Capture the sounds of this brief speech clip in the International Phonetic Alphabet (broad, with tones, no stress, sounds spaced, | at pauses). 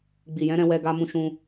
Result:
ɡ͡b i˨ j ɛ̃˨˦ ɾ ɛ̃˧ w ɛ˧ ɡ a˧ m ũ˧ ʃ ũ˧